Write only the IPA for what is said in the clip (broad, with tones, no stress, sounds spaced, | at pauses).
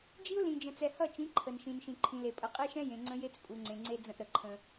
d͡ʒ i˦ ʊ̯ l ĩ˨ d͡ʒ ə̃˨ t͡s ɛ˨ h ʌ˦˨ t͡ʃ ĩ˨˦ ǃʰ ə˨ n ʃ ĩ˨ n ʃ ĩ˨ ǃʰ ĩ˨ l e˨ pʼ ə˨˦ qʼ e˦ ʃ ɛ̃˦ j ẽ˨ ŋ͡ǀ ə̃˦ j e˦ t͡s pʼ u˨ ŋ͡ǀ ẽ˨ ŋ͡ǀ e˦ d͡z ə̃˦ ʔ ɾ ə˨ ǃʰ ə̃˦